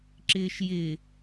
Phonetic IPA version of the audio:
ǁɪːʃjɪ

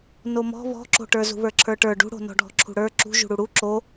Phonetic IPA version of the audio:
nomɔ̤ βɔ̤ǁo̤ʈə˞ zṳβə˞ǁʰə˞ʈə˞ ɖṳɽo̤ nɔ̤ɖʱɔ̤ǁʰṳɽə˞ ǁṳ ʒṳɽuɽu ǁo

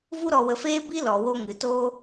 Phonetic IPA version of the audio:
vu˦ɾɔ˧wə˧feː˦ bi˦ lɔ˨wo˧ ŋɨ˨toː˦

